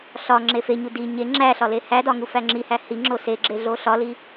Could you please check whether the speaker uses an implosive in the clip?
no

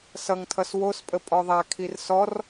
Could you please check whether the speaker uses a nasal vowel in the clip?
no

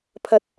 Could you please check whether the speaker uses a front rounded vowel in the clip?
no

